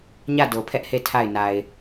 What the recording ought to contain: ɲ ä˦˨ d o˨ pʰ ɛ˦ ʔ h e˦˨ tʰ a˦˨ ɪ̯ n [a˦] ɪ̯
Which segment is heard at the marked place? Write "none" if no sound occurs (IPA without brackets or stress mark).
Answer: a˨